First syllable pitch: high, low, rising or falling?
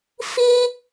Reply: high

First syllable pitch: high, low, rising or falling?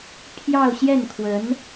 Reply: falling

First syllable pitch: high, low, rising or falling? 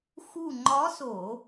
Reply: falling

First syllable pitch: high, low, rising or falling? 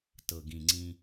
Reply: low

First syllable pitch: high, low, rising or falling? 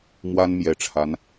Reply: high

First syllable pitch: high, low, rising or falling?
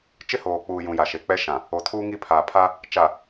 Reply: high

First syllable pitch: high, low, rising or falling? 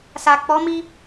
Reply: low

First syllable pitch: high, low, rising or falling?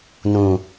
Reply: low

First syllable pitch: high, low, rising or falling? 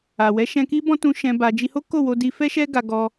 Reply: low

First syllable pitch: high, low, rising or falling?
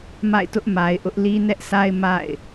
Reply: falling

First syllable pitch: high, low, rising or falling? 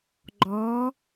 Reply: rising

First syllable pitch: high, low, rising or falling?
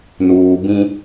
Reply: low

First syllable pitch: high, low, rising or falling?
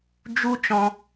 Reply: high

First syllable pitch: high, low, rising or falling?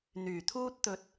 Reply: low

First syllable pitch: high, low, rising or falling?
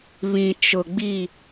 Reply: low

